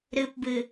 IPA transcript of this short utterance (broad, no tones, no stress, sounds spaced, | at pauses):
ɾ ɨ p b ɨ